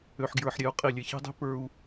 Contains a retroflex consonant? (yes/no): no